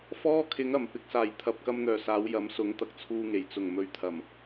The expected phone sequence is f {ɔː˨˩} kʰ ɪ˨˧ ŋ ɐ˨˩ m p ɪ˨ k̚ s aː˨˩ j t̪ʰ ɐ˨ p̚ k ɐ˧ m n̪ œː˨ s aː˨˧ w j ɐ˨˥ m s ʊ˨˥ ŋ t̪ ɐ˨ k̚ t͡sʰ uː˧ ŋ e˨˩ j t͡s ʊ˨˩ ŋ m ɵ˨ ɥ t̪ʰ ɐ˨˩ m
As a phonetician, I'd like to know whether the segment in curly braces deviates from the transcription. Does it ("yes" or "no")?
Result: yes